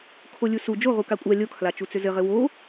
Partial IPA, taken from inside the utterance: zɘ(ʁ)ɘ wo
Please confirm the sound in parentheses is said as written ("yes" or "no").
yes